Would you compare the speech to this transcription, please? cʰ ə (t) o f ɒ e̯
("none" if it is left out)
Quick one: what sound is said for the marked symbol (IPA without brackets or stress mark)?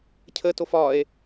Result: t